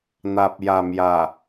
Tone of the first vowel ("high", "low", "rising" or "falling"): low